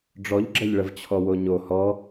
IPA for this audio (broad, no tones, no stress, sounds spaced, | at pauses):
ɖ͡ʐ ɔ ʎ ɡ͡ǁ ɐ ʎ ɭ ə v t͡ɕʰ ɔ w o ɲ o h ɔ